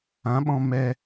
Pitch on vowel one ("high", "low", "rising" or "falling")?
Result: rising